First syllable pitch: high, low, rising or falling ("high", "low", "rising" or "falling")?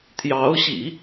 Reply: rising